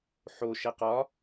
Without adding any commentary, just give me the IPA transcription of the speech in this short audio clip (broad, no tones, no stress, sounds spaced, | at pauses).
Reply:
ħ o ʃ ɛ q ɒ